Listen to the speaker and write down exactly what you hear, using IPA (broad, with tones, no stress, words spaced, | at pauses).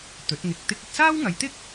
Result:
t̪ɵ˨˥t̚ŋɪ˧k̚ t̪ɪ˥k̚ ɵ˧t̚saː˥wŋɐ˨˧jt̪ɪ˥k̚